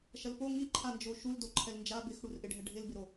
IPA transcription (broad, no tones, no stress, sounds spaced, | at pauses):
ʃ ɐ l p o ŋ i ǃʰ a n d͡ʒ o ʃ u l d o ǃʰ ɛ l n d͡ʒ a b ɪ x ɽ u r ʔ ɪ ɖʱ ɛ ɖʱ ɪ l b ɪ ɾ o